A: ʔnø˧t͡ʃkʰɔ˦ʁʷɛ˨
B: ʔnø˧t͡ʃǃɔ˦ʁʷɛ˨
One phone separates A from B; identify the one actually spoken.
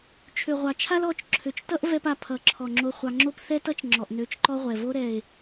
B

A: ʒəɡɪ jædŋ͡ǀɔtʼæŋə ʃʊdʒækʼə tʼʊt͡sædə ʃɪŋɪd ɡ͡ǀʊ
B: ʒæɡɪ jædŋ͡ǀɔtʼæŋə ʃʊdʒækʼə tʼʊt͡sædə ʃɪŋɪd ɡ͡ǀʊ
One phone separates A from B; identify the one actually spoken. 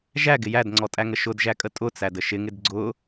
B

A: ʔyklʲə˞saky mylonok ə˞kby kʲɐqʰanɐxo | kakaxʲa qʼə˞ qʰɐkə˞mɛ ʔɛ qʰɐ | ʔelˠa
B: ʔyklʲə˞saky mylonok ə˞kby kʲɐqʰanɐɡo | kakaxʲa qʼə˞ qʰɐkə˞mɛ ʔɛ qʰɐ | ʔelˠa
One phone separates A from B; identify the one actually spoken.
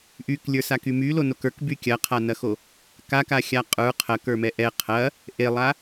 A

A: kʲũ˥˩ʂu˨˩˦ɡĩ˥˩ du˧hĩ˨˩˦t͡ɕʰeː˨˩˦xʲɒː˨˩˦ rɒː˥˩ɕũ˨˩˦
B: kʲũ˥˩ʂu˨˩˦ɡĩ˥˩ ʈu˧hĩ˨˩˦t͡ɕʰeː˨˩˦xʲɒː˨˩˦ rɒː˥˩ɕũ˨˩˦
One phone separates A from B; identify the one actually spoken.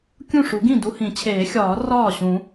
A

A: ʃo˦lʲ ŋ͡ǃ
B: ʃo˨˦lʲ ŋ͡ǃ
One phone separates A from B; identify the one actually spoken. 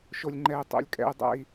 A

